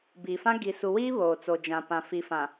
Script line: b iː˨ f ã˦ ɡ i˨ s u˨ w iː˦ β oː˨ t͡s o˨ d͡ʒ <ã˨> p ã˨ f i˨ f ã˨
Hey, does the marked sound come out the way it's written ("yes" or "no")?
yes